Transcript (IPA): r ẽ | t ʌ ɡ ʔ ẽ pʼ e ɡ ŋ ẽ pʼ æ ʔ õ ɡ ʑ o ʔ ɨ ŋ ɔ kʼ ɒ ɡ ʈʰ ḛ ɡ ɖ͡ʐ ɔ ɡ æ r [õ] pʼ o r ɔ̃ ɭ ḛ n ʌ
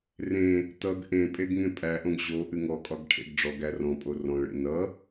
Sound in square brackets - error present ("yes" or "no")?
yes